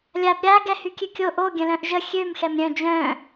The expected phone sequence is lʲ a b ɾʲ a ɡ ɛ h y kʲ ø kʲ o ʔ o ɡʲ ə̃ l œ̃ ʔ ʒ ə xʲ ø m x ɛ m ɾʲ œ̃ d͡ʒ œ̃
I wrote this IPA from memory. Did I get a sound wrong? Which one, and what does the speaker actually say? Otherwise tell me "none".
none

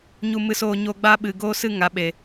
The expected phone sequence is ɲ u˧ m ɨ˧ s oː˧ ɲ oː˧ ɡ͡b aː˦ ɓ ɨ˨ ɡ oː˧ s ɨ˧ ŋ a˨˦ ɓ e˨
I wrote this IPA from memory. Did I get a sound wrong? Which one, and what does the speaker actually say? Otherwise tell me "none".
none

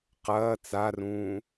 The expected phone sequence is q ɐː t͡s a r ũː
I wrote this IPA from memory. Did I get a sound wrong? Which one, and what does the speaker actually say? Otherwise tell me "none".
none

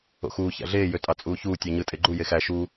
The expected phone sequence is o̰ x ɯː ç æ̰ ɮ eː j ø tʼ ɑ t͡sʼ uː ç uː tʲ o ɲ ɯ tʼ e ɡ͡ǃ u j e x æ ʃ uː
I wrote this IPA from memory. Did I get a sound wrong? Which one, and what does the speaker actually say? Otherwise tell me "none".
ɯː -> uː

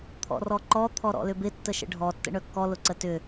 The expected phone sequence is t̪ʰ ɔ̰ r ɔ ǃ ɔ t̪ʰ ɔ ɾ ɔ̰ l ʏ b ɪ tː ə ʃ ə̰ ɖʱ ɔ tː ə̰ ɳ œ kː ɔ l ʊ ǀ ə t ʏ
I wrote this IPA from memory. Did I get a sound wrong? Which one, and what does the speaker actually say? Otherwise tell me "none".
none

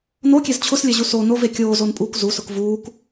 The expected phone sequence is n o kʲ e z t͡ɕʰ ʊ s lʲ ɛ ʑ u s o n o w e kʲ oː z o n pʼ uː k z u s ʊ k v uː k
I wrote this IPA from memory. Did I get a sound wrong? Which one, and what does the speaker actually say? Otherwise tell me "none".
w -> v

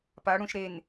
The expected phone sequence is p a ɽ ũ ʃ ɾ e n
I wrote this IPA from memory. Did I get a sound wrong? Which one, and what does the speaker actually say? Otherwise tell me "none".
none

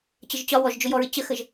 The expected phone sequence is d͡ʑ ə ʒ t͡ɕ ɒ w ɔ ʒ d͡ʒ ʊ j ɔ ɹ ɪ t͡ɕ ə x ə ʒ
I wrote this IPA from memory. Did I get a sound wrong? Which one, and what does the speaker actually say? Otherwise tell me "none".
d͡ʑ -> t͡ɕ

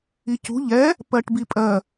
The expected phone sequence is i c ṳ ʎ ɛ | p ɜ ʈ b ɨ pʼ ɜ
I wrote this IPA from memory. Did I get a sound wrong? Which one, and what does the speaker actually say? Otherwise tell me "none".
ɨ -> i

